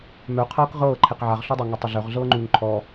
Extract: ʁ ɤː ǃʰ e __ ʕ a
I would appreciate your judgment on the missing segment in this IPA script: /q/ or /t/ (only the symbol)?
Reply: q